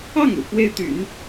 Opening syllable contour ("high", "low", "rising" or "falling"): falling